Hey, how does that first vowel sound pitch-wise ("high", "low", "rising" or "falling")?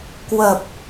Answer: low